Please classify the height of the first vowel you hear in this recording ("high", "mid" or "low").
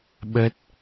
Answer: mid